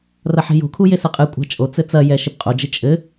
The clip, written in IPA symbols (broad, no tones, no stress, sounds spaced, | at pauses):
r ɐ ħ e̤ j o̤ kʰ u j e s ɘ qʼ ɨ kʷʼ a̤ t͡ʃʼ o t͡s ɘ t͡s ɐ j ɛ ʃ ɨ p qʼ o d͡ʒ ɨ t͡ʃʼ ɘ